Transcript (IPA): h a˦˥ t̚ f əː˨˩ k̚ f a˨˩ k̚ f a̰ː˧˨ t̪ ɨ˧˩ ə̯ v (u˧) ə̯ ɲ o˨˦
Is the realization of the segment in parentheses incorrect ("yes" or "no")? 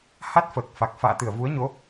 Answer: yes